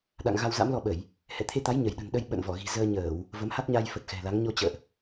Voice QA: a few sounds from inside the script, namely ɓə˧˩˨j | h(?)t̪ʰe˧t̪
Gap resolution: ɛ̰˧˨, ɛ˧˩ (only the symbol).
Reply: ɛ̰˧˨